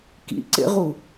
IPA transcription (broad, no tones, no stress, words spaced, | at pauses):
kḭǀḛʁu